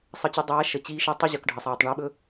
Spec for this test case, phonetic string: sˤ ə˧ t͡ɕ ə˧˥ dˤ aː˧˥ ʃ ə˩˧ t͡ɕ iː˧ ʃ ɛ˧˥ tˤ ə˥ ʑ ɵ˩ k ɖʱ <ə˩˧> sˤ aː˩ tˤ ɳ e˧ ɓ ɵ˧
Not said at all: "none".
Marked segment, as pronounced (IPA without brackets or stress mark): ə˩